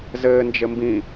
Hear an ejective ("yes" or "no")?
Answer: no